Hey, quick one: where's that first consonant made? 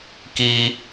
velum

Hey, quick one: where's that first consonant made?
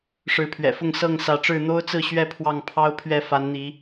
retroflex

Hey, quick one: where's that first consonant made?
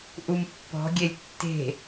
throat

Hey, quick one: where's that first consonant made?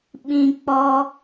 lips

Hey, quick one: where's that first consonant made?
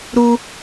tongue tip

